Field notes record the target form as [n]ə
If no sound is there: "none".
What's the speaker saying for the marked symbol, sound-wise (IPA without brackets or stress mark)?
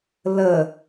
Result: l